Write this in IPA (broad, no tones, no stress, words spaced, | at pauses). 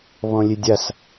βɔ̃lʲedʲas